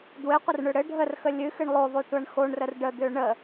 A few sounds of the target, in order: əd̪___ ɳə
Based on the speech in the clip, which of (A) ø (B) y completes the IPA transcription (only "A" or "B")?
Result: A